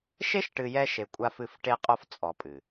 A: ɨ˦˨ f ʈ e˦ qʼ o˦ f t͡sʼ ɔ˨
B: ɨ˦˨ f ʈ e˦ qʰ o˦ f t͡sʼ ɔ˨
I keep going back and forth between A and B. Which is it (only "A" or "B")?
A